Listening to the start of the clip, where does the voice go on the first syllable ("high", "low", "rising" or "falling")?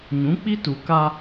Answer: rising